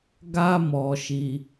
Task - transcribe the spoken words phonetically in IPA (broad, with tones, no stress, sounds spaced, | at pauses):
ɡ a˦ m ɔ˧ ʃ i˧